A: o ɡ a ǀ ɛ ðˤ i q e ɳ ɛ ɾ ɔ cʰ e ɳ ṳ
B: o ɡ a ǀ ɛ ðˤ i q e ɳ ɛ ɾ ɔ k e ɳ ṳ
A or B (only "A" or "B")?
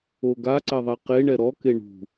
B